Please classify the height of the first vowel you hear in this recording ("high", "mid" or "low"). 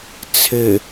mid